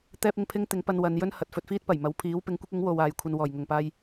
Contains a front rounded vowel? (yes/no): no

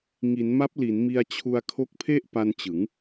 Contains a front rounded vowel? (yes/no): no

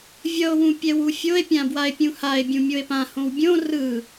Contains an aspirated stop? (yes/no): no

